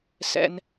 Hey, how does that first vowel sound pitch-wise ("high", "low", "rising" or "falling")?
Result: high